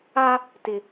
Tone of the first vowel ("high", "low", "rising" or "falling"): high